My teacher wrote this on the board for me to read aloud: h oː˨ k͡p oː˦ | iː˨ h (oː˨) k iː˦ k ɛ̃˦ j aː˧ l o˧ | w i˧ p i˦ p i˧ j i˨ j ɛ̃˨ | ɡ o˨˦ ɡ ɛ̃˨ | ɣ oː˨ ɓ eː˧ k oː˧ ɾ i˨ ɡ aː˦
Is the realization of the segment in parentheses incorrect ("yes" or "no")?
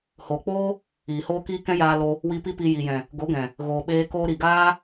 yes